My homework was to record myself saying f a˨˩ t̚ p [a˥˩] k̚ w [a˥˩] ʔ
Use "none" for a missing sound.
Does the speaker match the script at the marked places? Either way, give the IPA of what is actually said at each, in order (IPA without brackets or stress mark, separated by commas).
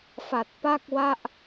a˥˩, a˥˩